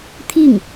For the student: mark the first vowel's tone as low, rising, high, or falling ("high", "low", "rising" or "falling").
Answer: falling